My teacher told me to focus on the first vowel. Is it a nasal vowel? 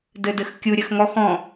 no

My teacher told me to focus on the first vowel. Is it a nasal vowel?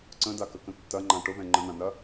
yes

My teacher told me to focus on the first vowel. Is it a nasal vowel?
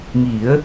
no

